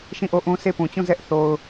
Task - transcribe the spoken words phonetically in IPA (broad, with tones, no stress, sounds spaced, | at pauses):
ʃ ĩ˦˨ ʔ o˦˨ ʔ ũ˦ s e˦˨ p ũ˨ t͡ɕ ũ˦˨ z ɛ˦ ʔ θ o˦ ʊ̯